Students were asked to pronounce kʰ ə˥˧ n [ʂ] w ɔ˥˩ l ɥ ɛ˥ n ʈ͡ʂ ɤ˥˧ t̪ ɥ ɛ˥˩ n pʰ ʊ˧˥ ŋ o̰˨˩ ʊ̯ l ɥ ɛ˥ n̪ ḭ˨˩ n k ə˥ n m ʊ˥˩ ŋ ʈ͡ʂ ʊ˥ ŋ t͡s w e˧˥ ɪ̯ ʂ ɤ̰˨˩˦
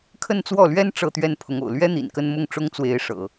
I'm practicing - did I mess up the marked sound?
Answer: yes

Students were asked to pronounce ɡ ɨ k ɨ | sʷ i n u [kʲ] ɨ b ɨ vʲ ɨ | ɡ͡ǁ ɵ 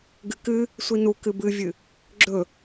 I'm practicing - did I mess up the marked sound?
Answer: yes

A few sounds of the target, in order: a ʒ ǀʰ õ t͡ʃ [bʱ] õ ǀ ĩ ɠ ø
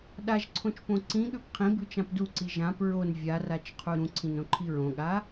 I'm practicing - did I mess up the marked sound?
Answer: yes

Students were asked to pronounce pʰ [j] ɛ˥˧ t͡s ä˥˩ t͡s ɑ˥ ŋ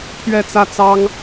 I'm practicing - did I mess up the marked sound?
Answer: yes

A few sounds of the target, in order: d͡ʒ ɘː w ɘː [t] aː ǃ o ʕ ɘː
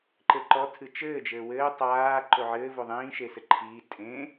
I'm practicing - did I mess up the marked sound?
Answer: yes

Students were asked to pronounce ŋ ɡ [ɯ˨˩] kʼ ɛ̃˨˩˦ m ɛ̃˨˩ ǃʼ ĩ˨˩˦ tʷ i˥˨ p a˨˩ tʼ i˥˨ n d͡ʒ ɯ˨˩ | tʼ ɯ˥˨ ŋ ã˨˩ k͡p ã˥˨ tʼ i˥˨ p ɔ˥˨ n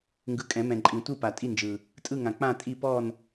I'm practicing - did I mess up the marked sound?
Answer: yes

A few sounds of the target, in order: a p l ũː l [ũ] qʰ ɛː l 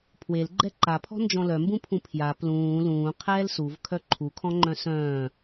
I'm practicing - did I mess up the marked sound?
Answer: yes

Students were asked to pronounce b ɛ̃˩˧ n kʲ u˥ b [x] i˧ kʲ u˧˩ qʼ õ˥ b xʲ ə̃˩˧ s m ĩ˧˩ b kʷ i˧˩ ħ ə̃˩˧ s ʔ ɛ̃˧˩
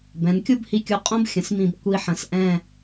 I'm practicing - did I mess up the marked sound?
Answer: yes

